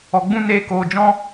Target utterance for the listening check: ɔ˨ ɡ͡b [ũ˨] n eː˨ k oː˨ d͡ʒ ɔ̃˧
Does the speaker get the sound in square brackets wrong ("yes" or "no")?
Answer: yes